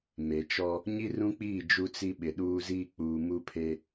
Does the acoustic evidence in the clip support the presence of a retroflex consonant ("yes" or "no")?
no